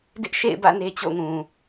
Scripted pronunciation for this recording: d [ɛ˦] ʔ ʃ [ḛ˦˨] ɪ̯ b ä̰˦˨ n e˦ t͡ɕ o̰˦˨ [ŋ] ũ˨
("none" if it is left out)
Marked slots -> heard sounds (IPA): ɪ˦, ḛ˦˨, ŋ

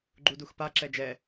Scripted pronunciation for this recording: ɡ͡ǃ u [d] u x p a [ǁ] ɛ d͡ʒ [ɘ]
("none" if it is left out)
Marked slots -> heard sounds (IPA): d, ǁ, ɛ

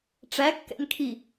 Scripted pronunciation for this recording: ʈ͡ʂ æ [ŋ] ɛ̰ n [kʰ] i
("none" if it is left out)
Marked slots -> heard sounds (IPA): kː, kʰ

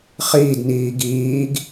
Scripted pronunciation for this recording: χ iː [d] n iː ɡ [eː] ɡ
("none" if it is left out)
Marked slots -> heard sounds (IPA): d, iː

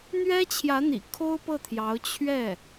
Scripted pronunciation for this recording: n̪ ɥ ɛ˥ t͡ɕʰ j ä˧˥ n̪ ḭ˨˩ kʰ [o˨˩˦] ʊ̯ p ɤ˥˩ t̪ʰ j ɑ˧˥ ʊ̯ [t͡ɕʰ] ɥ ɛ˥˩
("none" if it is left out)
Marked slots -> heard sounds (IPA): o˥, t͡ɕʰ

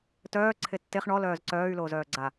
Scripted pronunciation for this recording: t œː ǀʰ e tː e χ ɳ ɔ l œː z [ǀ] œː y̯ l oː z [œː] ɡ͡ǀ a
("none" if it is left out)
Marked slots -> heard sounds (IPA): ǀ, œː

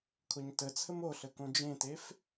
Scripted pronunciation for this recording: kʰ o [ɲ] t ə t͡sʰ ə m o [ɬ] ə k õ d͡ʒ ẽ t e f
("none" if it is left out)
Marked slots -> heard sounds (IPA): ɲ, ɬ

